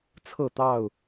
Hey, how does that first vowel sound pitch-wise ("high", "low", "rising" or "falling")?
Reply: falling